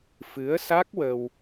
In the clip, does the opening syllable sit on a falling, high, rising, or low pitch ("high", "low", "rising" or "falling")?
rising